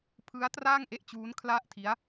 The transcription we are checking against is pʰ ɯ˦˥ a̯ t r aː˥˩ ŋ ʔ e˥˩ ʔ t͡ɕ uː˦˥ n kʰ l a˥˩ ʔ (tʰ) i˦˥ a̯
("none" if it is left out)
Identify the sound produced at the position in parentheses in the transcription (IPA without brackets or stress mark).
tʰ